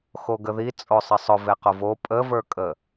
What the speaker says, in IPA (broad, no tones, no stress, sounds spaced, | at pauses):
x o ɡ ə ð i t͡sʼ o sˤ ə sˤ ʊ v e q ʊ v o pʼ ə v ə˞ kʼ ə